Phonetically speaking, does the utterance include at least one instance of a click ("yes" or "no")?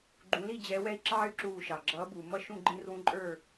yes